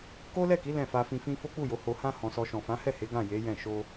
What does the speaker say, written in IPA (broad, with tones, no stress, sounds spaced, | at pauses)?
k o˦ l ɛ˦˨ k i˨˦ l ɛ̃˦˨ f a˧ f ĩ˧ f ĩ˦ f o˦ k͡p u˦˨ j o˨˦ h o˧ h ã˦ h ɔ̃˧ s ɔ˧ ʃ ɔ̃˨ f ã˨˦ h ɛ˦˨ h e˨˦ ɡ ã˦˨ j e˨˦ j ɛ̃˦˨ ʃ o˧